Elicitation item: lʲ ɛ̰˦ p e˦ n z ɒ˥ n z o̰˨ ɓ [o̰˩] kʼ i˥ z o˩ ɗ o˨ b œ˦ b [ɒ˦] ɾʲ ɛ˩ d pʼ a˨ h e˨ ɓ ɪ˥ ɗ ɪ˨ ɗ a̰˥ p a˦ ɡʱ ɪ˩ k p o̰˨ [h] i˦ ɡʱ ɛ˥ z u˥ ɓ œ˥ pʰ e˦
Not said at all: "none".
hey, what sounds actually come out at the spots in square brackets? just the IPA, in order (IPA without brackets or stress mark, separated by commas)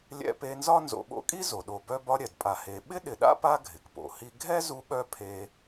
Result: o̰˦, ɒ˦, h